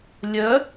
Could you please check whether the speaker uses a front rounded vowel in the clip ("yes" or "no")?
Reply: yes